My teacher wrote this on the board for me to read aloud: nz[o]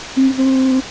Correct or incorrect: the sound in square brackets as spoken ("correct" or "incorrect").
incorrect